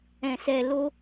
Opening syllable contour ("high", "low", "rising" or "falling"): low